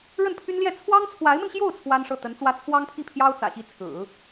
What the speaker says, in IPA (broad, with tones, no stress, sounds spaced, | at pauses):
ɻ ə˥˩ n pʰ y˥ n l j ɛ˥˩ t͡sʰ w ɑ˥ ŋ t͡sʰ w a˧˥ ɪ̯ m ə˧ n ɕ j o˥˩ ʊ̯ t͡sʰ w a˥ n ʂ ɤ˥˩ t̪ ə˧˥ n t͡s w ä˥ t͡sʰ w ɑ˥ ŋ pʰ i˥˩ pʰ j ɑ˥ ʊ̯ t͡s ä̰˨˩ ɕ i˥˩ t͡sʰ ɹ̩˨˩˦